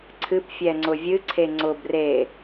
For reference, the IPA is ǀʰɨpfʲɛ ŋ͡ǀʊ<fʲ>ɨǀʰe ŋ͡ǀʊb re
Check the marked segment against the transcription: incorrect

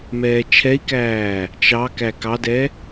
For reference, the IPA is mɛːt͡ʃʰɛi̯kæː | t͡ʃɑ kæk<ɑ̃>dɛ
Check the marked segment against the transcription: incorrect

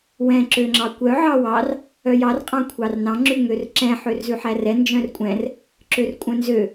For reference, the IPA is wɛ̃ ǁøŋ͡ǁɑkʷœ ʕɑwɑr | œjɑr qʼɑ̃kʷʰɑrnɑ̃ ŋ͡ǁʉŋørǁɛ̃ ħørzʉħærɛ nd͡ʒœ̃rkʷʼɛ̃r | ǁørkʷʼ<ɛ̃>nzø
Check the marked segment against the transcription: incorrect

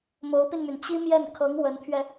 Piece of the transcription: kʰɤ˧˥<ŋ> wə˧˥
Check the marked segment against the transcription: correct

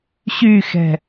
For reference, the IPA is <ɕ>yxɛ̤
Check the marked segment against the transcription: correct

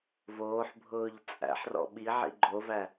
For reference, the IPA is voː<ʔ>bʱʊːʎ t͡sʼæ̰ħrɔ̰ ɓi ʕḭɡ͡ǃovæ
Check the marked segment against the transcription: incorrect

